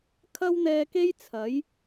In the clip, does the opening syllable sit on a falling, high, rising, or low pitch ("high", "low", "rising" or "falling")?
high